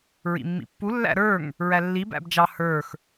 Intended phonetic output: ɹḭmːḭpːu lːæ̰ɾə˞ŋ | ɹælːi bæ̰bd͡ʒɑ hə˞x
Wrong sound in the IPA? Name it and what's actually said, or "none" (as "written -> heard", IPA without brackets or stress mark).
none